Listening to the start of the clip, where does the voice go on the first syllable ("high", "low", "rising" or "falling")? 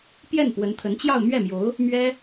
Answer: falling